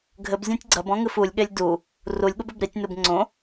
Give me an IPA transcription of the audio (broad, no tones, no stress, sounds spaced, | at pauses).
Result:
ɡʱ ɘ b zʲ ã tʲ ɡ͡ǀ ɐ b ɔ̃ ŋ ɨ f u lʲ ɠ e lʲ d u | r u lʲ ɠ u b ɘ b ɾ i tʲ n u b ŋ͡ǀ õ